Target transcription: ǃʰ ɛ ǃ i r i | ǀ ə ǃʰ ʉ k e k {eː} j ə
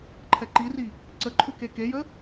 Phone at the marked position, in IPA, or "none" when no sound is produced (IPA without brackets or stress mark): e